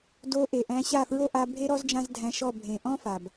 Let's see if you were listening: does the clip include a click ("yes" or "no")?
no